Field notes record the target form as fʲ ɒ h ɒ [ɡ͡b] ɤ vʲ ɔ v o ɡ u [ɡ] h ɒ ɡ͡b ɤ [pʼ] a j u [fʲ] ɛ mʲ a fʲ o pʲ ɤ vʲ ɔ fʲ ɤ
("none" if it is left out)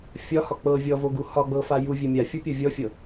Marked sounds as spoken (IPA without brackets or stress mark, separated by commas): k͡p, none, f, vʲ